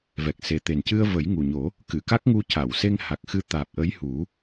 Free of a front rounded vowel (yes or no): yes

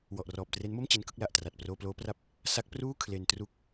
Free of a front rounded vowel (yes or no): yes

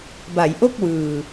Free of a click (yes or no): yes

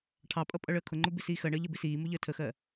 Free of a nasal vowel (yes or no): yes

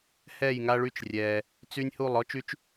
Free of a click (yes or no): yes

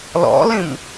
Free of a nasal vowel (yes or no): no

